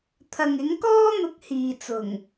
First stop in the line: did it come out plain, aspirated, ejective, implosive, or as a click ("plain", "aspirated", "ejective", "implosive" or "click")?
aspirated